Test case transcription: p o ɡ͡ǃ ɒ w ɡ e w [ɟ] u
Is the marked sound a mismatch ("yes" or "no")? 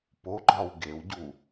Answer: no